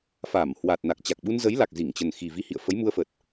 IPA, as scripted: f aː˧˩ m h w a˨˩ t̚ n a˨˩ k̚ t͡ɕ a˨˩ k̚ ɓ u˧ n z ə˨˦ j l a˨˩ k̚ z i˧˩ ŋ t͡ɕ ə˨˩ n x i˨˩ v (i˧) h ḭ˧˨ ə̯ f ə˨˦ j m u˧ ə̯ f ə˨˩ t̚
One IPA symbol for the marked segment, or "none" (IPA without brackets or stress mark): i˧